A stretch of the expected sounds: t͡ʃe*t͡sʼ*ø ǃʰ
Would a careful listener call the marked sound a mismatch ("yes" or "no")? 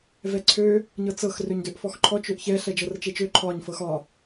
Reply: yes